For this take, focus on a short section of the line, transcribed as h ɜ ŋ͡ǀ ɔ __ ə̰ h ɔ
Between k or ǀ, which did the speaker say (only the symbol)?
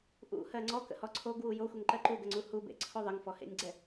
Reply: k